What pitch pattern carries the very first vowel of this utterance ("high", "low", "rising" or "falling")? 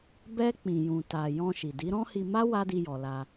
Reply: high